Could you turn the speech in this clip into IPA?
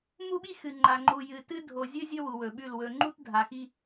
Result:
mu˦ɓi˦xɨ˨ ŋ͡ǃa˨ ŋ͡ǃu˨jɨ˨tɨ˦ dʱo˨zʲɵ˦ zʲɵ˦wu˨wɵ˨ɓʉ˦˨l wɵ˨ŋ͡ǃu˦t dʱa˨xi˦

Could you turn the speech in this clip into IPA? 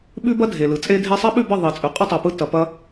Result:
ɓʉ˦bɐ˦dʱe˨ lɯ˨t͡sʼe˦dʱe˦ sˤɐ˦ɓʉ˦˨bə˦˨ ðˤi˨˦ t͡sʼʉ˨qʼə˦tˤɐ˨pɯ˧ tɐ˨pɐ˧

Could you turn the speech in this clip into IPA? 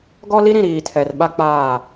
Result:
ɡɔ˦li˦ɾĩ˨ ɾiː˨tʰɛ˨rɓa˦ k͡paː˦˨

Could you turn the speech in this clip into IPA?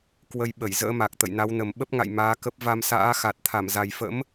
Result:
kwə˧j ɓə˧˩j zə̰ː˧˥ma˨˩k̚ t̪ə̰˧˨jna˨˦wnə˨˩m ɓə˦˥p̚ŋa̰˧˨j maː˨˦kə˦˥p̚ va˧msa̰ː˧˥xa˨˩t̚ t̪ʰa˧˩mza˨˩jfə̰˧˥m

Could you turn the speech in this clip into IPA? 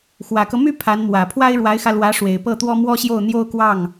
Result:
xwä˨˩kɤ˦my˥ pʰa˧˥nmwä˨˩ pʰwa˥ɪ̯ɻwa˧˥ɪ̯xä˧lwä˧˥ ʂwe˨˩ɪ̯pɤ˥˩t̪wɔ˥ mwɔ˥ɕjo˥˩ʊ̯ n̪jo˥ʊ̯kwɑ˥˩ŋ

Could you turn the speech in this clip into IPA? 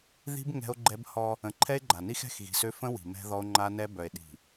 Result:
ði̤˦b ŋɛ̤˦o̯ɡ͡ǃɛ˦bhɔ˦ | ə̃˨ǃʰɛ˦e̯ɡ͡ǃa˨ni˦x ɛ̤˦˨xɣi̤˨sø˦ fə̃˦ wi̤˨mɛ̤˦ðɔ˦o̯ ŋ͡ǃa˦nɛ˦ bœ˨e̯ɗi̤˨

